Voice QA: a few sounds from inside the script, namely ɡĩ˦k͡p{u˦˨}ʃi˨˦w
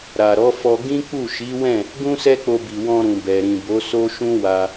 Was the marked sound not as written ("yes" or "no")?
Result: no